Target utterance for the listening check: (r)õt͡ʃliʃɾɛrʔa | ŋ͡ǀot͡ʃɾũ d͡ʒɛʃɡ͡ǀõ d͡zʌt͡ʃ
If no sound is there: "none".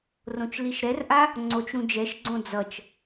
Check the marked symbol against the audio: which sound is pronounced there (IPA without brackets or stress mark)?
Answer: r